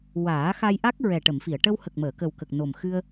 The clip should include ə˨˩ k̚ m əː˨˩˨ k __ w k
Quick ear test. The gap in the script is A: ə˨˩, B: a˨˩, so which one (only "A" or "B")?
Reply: A